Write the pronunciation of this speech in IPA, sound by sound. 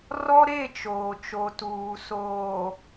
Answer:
rɔ˦ɾe˦˨t͡ʃoː˨ t͡ʃo˨tuː˨soː˨

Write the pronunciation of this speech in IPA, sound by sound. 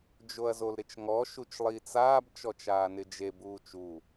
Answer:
d͡ʒoɐ̯zolɾɪt͡ʃŋɔ ʃut͡ʃlˠit͡saːb t͡ʃɔt͡ʃaːnɪd͡ʒe buːt͡ʃu

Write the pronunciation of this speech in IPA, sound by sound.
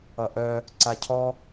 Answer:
ʌʔœ | ǀacʰɔ

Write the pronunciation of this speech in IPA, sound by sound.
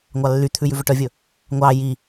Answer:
ŋʷɑlːyt̪ʰʉ jʉvɵʈœvʲɵ | ŋʷɑ ji

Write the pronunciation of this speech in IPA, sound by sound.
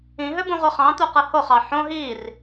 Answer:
ĩɦøbũʁʷɯ χɑ̃t̪uqɯ hoχɑ ħõ ɦir

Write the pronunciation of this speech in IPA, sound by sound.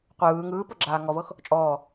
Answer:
qʷɯː ŋɯːpɤ ɡ͡ǁaːŋɔvɤx | t͡ʃʼɔː

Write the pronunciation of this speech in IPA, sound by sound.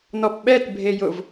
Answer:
nɔpɓɛt bʱejʊv

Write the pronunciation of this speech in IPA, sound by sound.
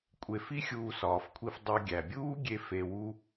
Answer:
kʷʼe˧fi˦xʲuː˧ sɒː˨fkʷʰi˧f dˤo˧ɡʲæ˨ bʲuː˦ɡʲe˧ fe˧wu˦

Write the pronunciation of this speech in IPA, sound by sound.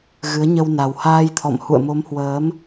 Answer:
ɣɨ˨˦ə̯ɲə˧w na˨˩whaː˧jt̪ʰɔ̰˧˨m hṵ˧˨ə̯mo˨˦mhwəː˨˦m

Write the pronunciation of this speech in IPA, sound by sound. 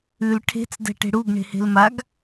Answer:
ʉl ʈʰe̤t͡s dɛ̤ʈe̤ɽuɡ ɳe̤he̤lmaɡ

